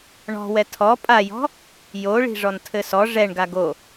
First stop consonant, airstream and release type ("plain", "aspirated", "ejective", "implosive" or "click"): aspirated